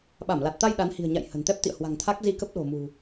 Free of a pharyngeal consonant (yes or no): yes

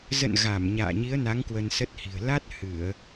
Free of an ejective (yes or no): yes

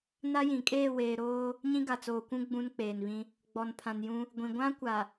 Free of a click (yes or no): yes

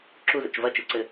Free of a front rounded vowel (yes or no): yes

